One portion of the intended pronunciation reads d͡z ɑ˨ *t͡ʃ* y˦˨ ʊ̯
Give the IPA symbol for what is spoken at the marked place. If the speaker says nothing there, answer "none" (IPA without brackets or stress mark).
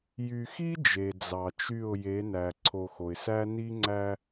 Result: t͡ʃ